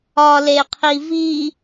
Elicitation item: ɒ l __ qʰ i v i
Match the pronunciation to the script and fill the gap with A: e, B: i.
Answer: A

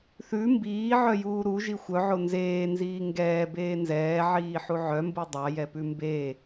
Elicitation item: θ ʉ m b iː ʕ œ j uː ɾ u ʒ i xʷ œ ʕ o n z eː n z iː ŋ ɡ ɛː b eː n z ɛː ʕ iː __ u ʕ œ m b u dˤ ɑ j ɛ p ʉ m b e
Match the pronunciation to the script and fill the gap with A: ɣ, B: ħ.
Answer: B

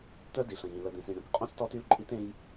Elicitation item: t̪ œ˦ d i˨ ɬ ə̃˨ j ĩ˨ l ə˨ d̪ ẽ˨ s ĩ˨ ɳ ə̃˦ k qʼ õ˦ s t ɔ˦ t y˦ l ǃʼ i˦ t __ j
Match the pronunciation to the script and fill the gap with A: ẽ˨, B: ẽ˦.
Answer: B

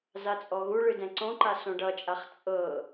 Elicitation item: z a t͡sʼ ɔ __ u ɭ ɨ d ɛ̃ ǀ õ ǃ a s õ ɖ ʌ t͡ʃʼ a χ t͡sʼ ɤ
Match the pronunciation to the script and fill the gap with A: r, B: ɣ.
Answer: B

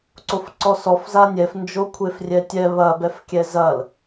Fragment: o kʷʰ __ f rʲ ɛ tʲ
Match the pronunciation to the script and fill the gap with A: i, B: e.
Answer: B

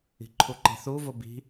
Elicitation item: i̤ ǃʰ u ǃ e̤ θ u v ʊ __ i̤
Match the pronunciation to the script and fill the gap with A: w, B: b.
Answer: B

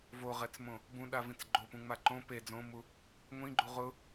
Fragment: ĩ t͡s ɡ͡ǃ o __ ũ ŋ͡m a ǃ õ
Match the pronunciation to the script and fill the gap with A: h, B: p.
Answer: B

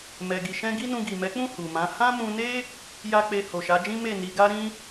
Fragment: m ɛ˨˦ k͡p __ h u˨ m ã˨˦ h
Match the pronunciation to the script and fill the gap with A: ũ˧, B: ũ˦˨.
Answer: B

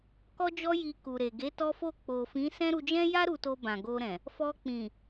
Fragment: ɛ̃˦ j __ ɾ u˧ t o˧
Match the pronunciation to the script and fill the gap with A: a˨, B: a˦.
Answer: B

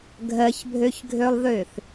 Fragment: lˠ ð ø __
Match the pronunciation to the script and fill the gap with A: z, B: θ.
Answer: B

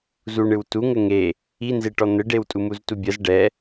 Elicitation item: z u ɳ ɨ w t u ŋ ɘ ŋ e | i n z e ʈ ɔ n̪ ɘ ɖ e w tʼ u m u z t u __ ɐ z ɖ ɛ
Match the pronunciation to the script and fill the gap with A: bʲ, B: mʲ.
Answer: A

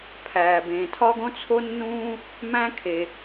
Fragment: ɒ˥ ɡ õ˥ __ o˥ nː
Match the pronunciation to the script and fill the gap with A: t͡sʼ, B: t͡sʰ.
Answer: B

